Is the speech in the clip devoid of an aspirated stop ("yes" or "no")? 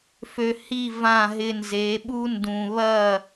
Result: yes